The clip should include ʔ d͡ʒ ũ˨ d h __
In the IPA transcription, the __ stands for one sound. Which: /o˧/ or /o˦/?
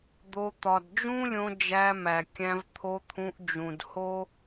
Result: o˦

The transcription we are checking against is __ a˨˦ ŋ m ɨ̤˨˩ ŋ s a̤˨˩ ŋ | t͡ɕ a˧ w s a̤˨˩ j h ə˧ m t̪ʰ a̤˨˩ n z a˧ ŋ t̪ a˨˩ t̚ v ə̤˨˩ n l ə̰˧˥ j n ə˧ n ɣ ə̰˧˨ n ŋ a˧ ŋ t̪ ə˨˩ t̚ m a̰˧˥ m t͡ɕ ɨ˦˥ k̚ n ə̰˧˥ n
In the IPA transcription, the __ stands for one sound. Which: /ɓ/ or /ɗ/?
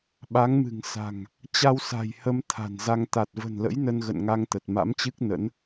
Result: ɓ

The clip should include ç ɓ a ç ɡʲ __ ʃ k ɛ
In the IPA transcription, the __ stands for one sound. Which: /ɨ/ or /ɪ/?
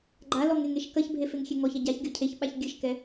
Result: ɨ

